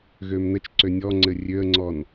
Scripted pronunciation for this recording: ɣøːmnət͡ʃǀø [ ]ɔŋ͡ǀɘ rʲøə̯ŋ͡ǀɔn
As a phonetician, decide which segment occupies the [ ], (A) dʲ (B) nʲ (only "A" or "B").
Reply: B